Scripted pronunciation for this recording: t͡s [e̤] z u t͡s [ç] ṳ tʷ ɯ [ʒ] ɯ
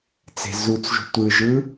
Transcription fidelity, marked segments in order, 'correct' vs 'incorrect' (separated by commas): correct, incorrect, correct